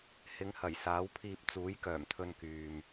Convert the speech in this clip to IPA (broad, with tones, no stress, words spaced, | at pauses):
hɪ˨˧ŋhɐ˨˩j saː˨˥wpʰiː˧p̚ t͡suː˨˥jkœː˨˩mt̪ʰɵ˧nkyː˨m